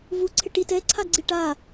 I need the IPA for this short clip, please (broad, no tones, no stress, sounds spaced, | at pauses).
v u ǀʰ ɪ ʈ i t ɛ ǀʰ a ɡ͡ǀ i ʈ a